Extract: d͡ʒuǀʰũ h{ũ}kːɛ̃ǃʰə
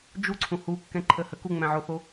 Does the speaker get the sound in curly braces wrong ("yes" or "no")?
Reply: yes